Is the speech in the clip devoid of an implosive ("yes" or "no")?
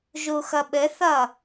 no